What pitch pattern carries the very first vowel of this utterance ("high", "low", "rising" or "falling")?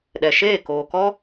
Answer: low